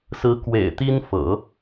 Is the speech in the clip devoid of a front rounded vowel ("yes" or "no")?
yes